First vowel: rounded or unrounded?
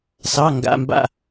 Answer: unrounded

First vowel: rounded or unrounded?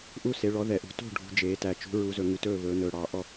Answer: rounded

